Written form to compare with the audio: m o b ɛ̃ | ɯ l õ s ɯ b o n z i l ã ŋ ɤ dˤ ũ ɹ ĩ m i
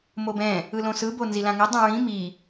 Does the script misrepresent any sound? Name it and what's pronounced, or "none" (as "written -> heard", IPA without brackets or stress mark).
none